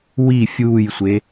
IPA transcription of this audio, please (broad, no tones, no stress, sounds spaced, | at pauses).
w i fʲ uː j sʷ e